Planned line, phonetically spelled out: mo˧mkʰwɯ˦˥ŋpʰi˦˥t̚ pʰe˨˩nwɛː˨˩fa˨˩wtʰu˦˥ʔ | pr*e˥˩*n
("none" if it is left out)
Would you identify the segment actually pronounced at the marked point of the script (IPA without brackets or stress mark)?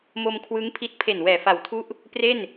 e˥˩